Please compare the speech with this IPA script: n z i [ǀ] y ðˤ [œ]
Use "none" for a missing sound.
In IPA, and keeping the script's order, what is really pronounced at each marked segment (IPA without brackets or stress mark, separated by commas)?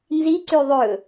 ǀ, ɵ